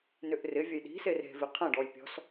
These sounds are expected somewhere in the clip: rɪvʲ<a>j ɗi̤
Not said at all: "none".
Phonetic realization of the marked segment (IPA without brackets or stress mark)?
ɐ